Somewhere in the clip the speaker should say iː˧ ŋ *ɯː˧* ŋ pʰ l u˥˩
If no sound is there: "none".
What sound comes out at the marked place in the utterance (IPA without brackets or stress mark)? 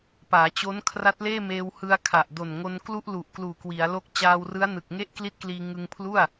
ɯ˧